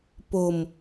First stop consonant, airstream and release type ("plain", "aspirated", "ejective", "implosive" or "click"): plain